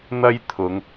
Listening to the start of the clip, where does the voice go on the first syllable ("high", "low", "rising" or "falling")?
high